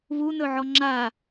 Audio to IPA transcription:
βunɵʕɔ ŋ͡ǁa

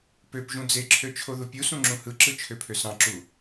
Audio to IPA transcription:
pøpʒũ d͡zeǁʰø t͡ʃʰoðupʲusũ ŋ͡ǁũhɯǁɯ t͡ʃʰøpʰøsɑ̃ǁu

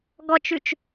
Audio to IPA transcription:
ɡɔt͡ʃʉt͡ʃ

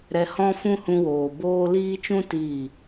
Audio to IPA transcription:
ɾɛ˧hɔ̃˦ fũ˦hũ˧woː˨ boː˦ liː˦t͡ʃũ˦ tiː˦˨

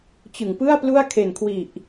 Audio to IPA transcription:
t͡ɕɯ˨˩ŋpɯ˥˩a̯plu˥˩a̯ kʰe˨˩nkʰwi˨˩ʔ

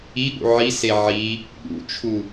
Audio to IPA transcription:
iɠṵ ʕise ʕi | ɠṵt͡ʃʰu

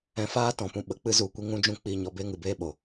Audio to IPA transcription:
ɛ̃˧faː˦tɔ̃˨pũ˧ ɓə˨˦k͡pɨ˧ zu˨ kʷi˧ŋũ˧d͡ʒũ˧ k͡pi˨ ɲɔ˨be˧ ŋɨ˨beː˦ɓo˨

